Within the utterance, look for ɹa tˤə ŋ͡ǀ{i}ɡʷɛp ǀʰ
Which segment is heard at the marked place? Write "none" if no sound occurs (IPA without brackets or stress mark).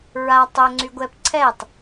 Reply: y